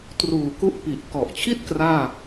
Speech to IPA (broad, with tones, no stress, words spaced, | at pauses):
truː˨˩ku˦˥ʔ pi˨˩ʔ kɔ˨˩ʔt͡ɕʰi˥˩t̚ kraː˥˩